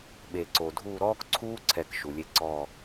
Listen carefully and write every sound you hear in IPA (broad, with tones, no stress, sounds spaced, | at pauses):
ɓ e˨ ǀ o˨ dʱ uː˦˨ ɾ ɔː˦ k ǀʰ uː˦ ǀʰ ɛ˨ k ʃ u˨ lʲ e˦ ǀ ɔː˦˨